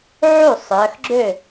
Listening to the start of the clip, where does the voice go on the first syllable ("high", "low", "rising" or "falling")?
falling